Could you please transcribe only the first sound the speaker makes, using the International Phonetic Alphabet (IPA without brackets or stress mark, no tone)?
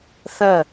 θ